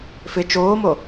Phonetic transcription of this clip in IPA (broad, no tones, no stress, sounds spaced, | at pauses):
f ɪ t͡ʃ oː m o